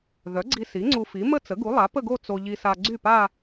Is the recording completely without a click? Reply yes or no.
no